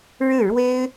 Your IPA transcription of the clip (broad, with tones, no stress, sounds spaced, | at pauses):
ɻ ɻ̩˥˩ ɻ w e˥ ɪ̯